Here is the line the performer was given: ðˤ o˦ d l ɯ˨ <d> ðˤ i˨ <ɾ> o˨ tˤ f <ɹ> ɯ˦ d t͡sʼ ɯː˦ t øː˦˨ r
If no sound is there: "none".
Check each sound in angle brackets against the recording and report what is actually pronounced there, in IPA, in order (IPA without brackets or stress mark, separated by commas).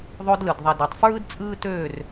d, d, ɹ